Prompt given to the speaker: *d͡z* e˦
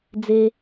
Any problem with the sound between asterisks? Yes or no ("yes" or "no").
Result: no